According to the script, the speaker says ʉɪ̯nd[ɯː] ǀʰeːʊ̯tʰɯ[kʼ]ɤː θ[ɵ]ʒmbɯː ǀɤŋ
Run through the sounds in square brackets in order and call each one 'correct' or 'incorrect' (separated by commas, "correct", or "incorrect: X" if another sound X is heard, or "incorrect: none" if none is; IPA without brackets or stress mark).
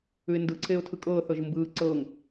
incorrect: ɯ, correct, incorrect: ɤ